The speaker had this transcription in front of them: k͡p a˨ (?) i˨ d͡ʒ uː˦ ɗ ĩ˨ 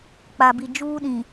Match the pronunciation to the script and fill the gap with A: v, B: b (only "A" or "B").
B